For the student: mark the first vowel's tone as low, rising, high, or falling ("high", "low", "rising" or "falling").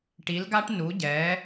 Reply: rising